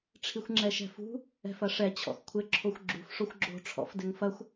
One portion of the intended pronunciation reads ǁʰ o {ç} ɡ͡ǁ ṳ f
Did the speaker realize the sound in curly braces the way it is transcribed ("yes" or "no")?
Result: no